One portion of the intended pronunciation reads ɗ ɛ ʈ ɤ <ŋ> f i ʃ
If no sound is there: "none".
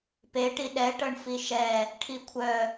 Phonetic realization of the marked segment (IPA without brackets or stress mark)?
ɳ